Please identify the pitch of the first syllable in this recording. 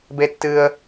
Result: high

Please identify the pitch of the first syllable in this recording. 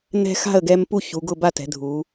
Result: high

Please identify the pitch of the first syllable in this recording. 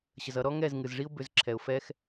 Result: low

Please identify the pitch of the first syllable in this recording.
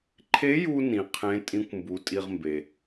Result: rising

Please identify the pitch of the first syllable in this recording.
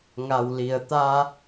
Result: low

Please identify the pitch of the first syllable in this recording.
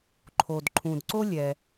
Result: low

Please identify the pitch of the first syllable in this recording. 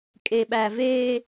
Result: low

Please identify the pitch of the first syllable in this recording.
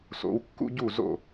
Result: rising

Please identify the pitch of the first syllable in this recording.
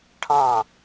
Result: falling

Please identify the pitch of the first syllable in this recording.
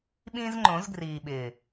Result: high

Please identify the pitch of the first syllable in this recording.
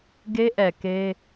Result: high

